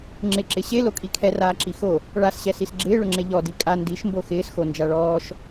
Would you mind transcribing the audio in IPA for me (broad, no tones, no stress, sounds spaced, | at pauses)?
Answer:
ŋ͡ǁ ɪ ǁ ɪ ɕ e l o kʼ i kʰ ɛ r aː ǁ i x o | ɭ a s ɕ ɛ s i s ɡ͡ǁ ɪː ɭ ʊ ŋ͡ǁ e ʎ ɔ d i kʼ a n d i ʃ m b o x ɪː s x o n d͡ʒ a ɭ ɔː ʃ